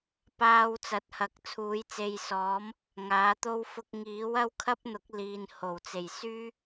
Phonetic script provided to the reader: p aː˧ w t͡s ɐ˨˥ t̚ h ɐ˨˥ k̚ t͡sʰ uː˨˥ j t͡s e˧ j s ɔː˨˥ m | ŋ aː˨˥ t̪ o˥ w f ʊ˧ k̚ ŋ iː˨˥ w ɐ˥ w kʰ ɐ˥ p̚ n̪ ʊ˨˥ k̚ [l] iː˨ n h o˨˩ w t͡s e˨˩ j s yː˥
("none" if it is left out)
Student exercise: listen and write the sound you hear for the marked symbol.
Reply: l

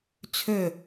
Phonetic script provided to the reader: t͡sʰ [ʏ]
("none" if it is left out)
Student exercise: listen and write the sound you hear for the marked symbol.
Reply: ʏ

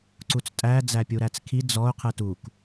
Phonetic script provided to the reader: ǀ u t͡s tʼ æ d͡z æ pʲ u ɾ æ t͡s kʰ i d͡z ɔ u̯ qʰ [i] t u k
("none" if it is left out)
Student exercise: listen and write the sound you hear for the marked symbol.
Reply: ɨ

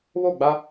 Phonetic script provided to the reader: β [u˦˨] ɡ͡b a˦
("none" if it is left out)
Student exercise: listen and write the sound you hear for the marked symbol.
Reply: o˦˨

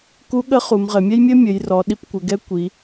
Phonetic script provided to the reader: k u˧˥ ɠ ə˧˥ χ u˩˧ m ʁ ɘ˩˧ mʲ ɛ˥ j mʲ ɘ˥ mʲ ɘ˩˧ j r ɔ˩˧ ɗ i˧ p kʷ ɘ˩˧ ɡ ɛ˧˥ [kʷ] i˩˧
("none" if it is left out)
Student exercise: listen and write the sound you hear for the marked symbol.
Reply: kʷ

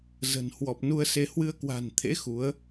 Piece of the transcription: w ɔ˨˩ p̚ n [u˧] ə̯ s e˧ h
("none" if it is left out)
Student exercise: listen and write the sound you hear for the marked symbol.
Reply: u˧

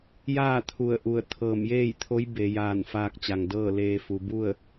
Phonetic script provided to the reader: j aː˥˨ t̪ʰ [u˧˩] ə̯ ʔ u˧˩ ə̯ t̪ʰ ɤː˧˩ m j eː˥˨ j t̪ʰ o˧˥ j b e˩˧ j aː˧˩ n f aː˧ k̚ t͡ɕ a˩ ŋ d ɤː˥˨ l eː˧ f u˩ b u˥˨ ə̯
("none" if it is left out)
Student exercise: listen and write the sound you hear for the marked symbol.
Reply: u˧˩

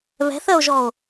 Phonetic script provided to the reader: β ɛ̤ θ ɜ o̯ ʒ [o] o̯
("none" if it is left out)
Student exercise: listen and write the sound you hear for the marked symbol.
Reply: ɔ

